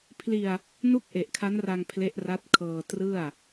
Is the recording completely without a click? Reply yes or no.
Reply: yes